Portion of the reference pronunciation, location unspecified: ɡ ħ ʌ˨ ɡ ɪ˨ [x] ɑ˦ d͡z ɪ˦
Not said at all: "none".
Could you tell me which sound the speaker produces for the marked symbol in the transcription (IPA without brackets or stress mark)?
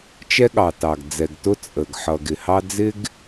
h